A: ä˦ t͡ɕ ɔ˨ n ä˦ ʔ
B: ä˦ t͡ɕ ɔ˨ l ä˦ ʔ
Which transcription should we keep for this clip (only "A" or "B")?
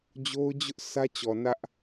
A